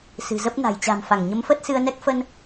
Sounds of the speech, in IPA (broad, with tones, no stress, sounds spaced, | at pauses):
s ɨ̤˨˩ z ə˦˥ p̚ n a̤˨˩ j t͡ɕ a̤˨˩ m f a˧˩ ŋ ɲ ə˨˦ m f ə˦˥ t̚ s ɨ˧ ə̯ n ɛ˦˥ k̚ f ə˧ n